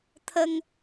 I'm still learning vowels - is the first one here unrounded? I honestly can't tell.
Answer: yes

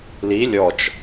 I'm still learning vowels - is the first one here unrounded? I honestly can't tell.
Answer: yes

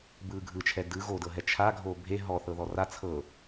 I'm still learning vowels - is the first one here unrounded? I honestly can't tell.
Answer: yes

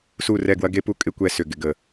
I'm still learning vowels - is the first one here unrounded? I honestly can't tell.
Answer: no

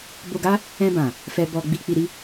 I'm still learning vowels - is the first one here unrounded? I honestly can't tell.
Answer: no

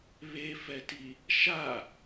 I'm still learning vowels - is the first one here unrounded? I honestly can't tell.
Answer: yes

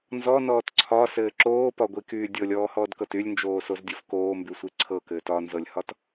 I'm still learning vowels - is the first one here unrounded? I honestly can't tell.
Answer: no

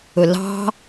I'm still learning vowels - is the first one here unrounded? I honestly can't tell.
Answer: no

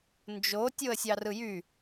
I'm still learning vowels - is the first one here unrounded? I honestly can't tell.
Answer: no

